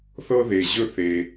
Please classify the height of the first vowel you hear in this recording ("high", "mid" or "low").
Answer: mid